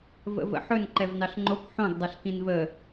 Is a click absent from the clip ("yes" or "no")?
no